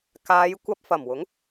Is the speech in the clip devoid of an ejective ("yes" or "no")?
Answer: yes